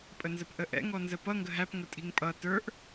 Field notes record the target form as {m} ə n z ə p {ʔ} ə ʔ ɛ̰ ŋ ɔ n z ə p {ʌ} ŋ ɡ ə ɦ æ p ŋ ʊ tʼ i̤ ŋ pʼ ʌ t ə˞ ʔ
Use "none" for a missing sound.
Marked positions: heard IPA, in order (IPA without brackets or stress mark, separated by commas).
pʼ, ʔ, ʌ